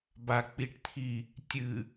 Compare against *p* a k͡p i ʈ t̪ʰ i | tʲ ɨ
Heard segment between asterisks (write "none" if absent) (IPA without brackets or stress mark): b